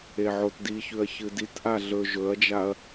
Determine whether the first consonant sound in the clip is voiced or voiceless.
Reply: voiced